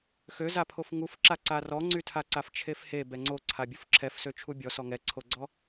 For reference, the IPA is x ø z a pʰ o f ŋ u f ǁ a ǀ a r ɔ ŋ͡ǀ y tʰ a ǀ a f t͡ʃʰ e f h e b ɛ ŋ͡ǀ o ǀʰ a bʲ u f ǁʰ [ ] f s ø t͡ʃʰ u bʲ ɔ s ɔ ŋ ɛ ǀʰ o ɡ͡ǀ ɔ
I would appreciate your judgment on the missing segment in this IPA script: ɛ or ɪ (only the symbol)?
ɛ